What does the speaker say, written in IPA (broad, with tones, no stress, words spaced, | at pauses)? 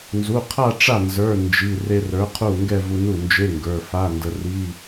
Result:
nzu˩˧˩qʰa˥˧ ʈ͡ʂa˥˩nzə˞˩˧˩ nd͡ʒi˩˧˩ re˧rə˞˩˥qʰu˥˩ ŋɡɛ˥˧vu˧nu˥˩ nd͡ʒe˧˥˧ŋɡə˞˩˧˩fa˧˥˧ ndə˧ri˧˥˧